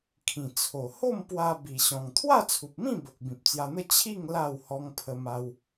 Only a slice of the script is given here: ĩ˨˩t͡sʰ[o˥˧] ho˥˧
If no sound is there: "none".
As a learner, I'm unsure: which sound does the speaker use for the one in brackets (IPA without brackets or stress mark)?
o˨˩